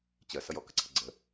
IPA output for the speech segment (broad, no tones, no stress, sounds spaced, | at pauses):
t͡ɕ ɜ s ʌ j ɔ k ə ǀʰ ə̤ ɡ͡ǀ ə̤